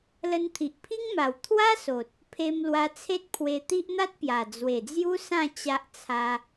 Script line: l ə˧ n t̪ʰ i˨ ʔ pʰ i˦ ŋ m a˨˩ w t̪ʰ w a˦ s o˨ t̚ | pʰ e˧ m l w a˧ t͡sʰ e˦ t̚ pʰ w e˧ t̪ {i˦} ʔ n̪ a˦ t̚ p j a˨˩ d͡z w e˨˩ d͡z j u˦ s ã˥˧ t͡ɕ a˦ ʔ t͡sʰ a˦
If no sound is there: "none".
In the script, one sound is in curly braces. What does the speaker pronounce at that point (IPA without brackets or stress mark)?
i˦